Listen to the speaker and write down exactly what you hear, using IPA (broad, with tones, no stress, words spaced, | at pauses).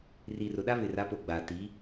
ri˨rʊ˨ɗa˦ βɪ˨ra˨˦po˨ɡ͡baː˨ tiː˨˦